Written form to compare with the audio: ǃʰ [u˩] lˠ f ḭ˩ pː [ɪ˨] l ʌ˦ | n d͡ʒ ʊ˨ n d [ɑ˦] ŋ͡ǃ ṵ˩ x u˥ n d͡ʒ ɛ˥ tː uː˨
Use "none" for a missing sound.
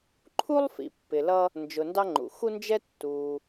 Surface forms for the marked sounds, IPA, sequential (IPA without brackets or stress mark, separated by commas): u˥, ɪ˨, ɑ˦